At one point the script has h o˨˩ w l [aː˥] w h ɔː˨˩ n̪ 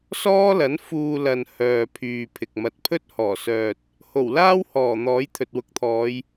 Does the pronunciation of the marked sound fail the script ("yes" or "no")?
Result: no